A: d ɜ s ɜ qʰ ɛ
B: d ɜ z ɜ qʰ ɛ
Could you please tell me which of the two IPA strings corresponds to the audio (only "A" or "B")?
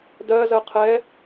B